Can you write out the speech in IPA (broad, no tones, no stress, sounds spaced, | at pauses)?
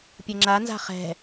pʲ ɤ ŋ͡ǁ a n z a̤ χ ɛ̤